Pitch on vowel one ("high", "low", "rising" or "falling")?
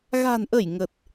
low